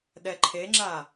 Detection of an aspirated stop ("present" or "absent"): present